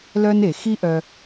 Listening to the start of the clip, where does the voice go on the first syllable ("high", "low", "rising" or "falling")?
high